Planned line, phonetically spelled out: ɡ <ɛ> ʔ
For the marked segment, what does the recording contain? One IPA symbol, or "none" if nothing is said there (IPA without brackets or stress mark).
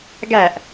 æ